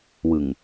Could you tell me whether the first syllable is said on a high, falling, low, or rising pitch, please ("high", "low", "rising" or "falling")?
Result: low